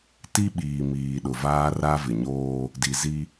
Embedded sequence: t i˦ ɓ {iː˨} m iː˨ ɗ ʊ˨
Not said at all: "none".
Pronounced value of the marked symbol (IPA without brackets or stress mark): iː˨